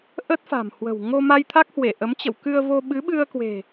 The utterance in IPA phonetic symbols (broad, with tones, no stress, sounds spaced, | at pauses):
ʔ ə˦˥ t̚ f a̤˨˩ m h w ə̤˨˩ w ŋ o˧ m a˧ j t̪ʰ a˦˥ k̚ h w e˧˩ ʔ ə˨˦ m t͡ɕ ə̰˧˨ w k ɨ˧ ə̯ v o˧ ɓ ɨ˨˦ ɓ ɨ˧ ə̯ k w e̤˨˩